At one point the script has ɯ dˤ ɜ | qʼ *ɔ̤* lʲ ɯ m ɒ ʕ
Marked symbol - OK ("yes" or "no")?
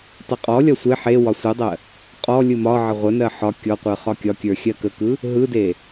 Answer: no